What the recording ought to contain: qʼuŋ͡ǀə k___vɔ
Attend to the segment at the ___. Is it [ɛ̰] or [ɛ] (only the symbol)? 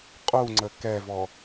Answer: ɛ